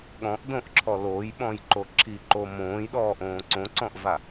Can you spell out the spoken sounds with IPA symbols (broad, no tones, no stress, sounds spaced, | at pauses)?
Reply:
ɠ ɔ̃ ʔ d õ ʔ ǁʰ ɔ l o j ɓ ɔ̃ j ǃ o ǁʰ i ǃ o m õː j ɗ ɔː ʔ õː ǀ õ ǀ ɔ̃ ʔ v a